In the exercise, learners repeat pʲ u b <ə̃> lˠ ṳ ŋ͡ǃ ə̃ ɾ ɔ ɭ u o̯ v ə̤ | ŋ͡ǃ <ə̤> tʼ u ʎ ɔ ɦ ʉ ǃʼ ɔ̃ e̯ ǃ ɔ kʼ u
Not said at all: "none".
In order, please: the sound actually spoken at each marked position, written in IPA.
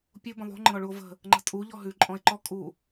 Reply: ə̃, ə̤

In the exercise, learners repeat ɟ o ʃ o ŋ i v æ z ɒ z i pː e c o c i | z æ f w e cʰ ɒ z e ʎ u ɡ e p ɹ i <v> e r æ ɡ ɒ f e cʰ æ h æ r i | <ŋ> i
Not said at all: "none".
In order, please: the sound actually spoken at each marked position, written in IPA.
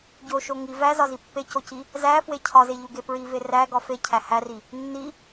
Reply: v, nː

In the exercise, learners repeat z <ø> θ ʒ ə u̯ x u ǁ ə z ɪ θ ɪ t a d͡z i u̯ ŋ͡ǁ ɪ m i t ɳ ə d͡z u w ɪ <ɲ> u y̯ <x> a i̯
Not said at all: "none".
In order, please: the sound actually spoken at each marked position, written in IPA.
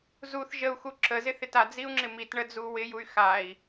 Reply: u, j, x

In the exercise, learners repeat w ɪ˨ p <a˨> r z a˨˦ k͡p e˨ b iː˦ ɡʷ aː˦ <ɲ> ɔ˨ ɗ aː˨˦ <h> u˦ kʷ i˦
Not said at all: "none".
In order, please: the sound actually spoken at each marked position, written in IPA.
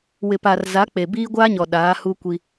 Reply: a˨, ɲ, h

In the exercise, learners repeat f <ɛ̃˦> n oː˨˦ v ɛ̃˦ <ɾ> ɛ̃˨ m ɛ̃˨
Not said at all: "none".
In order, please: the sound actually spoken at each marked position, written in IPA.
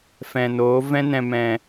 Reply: ɛ̃˨, n

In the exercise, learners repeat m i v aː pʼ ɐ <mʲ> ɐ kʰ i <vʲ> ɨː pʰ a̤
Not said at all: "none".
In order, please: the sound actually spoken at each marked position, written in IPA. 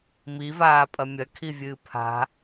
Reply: mʲ, vʲ

